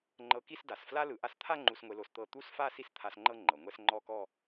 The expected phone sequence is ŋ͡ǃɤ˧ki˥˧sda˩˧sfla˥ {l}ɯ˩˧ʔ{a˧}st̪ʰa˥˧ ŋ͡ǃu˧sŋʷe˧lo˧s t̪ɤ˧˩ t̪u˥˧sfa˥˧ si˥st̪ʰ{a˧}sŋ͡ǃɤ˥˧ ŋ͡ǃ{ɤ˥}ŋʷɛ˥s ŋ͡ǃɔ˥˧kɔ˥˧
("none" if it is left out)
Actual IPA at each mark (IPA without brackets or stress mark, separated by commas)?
l, a˧, a˧, ɤ˩˧